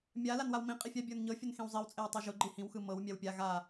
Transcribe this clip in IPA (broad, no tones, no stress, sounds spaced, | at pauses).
mʲ a l a n w a w m ĩ qʼ i fʲ a bʲ ə˞ n ɲ ɤ fʲ ʊ n x ĩ w zˤ i w t͡sʼ e w tˤ ɤ ʒ ʊ ɡ͡ǃ i h ĩ w x ɯ m ɤ w mʲ a w pʲ a ɣ a